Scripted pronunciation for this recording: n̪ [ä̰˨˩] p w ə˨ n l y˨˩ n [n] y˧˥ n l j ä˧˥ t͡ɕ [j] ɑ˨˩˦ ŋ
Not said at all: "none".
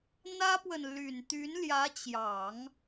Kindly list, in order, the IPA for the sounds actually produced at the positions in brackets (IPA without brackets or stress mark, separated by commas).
ä˥, t̪, j